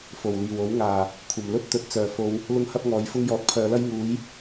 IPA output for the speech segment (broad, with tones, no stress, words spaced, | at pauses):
fo˨˩wliː˨˩wo˨˥w ŋaː˨˩ | kʷʰɐ˨˩mlɵ˥t̚ t̪ɵ˨˥t̚t͡sœː˨˩fo˨˧w | lʊ˥ŋhɐ˥p̚ŋɔː˨˥jfʊ˥ŋ jɔː˨˥t̚pʰœː˨˧lɐ˥j ŋuː˨˥j